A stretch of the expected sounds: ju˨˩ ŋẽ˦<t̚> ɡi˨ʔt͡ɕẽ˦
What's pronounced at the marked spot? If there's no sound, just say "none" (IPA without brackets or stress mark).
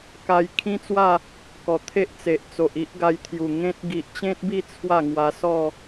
t̚